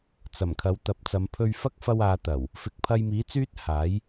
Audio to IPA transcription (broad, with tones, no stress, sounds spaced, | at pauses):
t͡s ɐ˨˩ m kʰ ɐ˨˧ w t̪ ɐ˨˥ p̚ t͡s ɐ˨˧ m pʰ ɵ˧ ɥ f ɐ˥ k̚ f ɐ˧ w aː˨˧ t̪ ɐ˨˩ w | f ɪ˨˥ k̚ pʰ ɐ˧ j m iː˨˥ t͡s yː˥ t̚ h aː˨˥ j